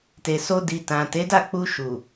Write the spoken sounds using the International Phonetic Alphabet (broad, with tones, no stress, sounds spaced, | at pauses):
t e˨ s o˧ d i˨ t ã˨ t e˨˦ d a˦˨ k͡p u˧ ʃ u˨